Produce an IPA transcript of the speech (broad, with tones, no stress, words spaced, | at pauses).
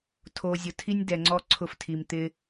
tʰo˨zʲʊ˨tʰi˦nʲ dɛ˨ŋ͡ǀɔ˧ ǀʰʊ˧ftʰi˨m t̪ɪ˧